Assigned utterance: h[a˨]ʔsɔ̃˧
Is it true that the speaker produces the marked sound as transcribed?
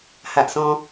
yes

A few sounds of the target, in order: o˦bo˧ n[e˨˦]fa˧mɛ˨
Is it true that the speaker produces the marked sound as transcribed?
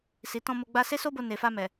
no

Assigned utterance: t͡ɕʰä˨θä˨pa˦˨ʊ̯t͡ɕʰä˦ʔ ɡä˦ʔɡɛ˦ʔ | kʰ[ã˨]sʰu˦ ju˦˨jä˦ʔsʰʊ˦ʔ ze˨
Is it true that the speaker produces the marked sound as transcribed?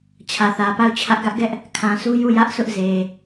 yes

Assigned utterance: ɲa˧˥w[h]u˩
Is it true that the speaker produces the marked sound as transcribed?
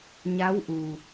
no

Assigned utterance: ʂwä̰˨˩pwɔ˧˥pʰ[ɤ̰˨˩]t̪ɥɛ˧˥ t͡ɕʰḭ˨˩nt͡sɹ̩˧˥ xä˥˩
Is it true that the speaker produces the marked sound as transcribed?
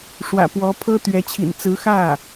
no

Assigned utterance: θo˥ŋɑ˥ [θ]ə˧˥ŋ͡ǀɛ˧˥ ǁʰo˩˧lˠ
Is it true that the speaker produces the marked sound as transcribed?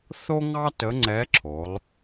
no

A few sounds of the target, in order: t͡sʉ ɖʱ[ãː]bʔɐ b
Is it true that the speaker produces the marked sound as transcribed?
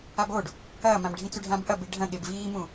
no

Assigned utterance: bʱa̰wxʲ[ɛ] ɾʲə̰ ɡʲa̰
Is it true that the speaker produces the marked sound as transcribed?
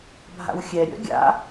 yes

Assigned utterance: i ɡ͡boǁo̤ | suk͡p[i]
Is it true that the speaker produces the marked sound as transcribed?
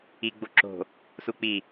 yes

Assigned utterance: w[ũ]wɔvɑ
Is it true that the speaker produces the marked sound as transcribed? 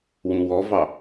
yes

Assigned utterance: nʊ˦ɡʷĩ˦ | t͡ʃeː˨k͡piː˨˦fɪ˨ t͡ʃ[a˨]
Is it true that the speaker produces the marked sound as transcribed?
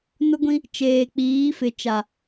yes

